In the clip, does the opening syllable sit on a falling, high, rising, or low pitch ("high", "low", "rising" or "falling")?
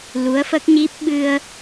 rising